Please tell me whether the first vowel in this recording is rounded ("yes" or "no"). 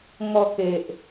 yes